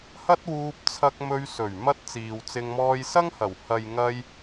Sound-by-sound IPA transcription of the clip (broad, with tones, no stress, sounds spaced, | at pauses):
h ɐ˥ t̚ w uː˧ p̚ t͡sʰ ɐ˧ k̚ m ɵ˧ ɥ s ɵ˨˩ ɥ m ɐ˧ t̚ t͡s iː˨ w t͡s ɪ˧ ŋ m ɔː˧ j s ɐ˥ ŋ h ɐ˨˩ w h ɐ˨ j ŋ ɐ˧ j